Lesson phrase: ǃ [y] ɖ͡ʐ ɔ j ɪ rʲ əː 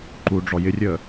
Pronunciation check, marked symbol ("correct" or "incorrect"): incorrect